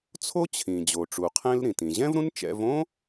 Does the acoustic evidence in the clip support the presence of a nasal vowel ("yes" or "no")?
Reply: yes